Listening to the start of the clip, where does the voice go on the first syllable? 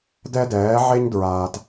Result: high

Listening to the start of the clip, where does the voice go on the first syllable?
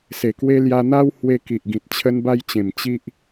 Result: low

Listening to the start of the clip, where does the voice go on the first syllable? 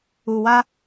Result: low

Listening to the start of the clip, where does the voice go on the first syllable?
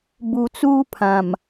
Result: low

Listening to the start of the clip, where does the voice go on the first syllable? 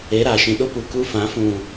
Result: rising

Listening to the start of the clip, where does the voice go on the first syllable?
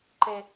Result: high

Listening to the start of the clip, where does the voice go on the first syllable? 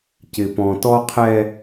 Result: low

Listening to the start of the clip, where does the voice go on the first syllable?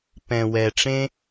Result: low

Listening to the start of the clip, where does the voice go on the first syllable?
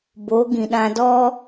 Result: rising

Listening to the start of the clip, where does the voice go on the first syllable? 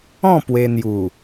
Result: falling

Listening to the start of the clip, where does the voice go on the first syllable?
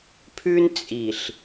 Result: high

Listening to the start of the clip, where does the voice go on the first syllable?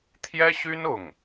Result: high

